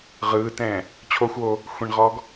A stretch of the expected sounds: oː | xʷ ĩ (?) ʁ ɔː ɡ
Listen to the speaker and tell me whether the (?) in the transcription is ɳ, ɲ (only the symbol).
ɳ